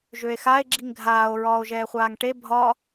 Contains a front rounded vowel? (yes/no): yes